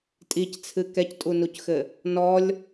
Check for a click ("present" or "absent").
absent